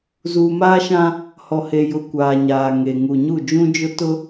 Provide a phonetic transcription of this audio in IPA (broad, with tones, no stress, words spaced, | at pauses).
zuː˨maː˦ʃã˦ | hɔ˨he˨jʊ˨˦ kʷaː˨ɲaː˨ŋe˨ ŋu˨ɲu˦˨ d͡ʒũ˦d͡ʒʊ˦ tʊ˦